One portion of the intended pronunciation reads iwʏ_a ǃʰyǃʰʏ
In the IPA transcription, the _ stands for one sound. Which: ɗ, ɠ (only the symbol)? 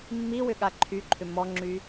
ɠ